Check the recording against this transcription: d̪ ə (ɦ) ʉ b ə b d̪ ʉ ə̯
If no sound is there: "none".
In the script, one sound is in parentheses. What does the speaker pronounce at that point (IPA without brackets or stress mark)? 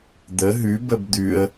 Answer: ɦ